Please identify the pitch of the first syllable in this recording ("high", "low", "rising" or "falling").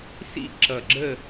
falling